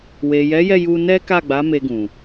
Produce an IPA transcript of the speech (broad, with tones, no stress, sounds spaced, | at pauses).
w e˨ j ɛ˨˦ j ɛ˦˨ j u˧ n ɛ˦ k a˦˨ ɡ͡b a˨˦ m e˧ ɡ ũ˨